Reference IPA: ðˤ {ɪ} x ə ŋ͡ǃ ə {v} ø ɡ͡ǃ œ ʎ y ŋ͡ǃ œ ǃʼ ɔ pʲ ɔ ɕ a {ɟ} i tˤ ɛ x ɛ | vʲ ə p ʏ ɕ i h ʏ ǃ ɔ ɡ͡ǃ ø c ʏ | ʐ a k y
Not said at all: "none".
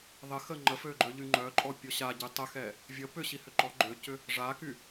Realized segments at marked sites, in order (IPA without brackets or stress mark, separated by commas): ɪ, f, ɟ